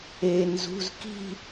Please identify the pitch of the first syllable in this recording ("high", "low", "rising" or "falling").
low